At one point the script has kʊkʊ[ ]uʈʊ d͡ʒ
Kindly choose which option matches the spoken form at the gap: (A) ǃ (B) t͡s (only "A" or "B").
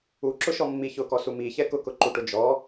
A